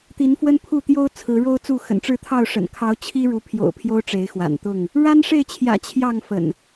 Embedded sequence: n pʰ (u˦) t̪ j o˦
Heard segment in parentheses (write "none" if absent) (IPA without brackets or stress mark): u˥˨